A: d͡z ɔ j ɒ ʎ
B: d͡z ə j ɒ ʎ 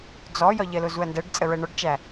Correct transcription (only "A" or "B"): A